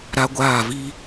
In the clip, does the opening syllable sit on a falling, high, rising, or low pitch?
high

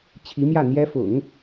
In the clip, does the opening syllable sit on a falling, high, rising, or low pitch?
rising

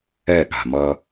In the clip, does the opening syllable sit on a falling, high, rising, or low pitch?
falling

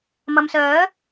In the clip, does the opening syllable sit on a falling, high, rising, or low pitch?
low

